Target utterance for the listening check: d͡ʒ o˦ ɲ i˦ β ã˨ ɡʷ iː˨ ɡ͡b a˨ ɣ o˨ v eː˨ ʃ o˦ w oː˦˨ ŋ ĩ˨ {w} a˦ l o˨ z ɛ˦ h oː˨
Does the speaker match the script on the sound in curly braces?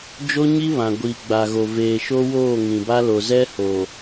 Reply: no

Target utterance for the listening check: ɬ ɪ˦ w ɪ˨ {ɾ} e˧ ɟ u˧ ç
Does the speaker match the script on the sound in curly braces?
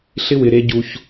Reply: yes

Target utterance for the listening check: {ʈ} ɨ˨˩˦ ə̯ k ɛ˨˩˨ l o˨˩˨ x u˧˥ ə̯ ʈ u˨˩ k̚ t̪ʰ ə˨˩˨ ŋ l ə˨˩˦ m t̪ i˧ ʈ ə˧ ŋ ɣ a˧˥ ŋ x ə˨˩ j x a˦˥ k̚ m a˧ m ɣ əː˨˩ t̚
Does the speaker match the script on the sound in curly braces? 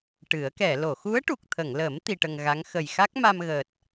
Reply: yes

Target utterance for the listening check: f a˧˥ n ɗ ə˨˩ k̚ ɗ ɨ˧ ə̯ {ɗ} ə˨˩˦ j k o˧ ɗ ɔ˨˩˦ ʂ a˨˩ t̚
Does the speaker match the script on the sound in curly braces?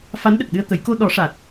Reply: no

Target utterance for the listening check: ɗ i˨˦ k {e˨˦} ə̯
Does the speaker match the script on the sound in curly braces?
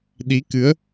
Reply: no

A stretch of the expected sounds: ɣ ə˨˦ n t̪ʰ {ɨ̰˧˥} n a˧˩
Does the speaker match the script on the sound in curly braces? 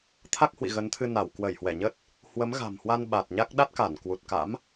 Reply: no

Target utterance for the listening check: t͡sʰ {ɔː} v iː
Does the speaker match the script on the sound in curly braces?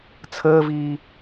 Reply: no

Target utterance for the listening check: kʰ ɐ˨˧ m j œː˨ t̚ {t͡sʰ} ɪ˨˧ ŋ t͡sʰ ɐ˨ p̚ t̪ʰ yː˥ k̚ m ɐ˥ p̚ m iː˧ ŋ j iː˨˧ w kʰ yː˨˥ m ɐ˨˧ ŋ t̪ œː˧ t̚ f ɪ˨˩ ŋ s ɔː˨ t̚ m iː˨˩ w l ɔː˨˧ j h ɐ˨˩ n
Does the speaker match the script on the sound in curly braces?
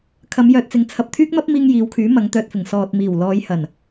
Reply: no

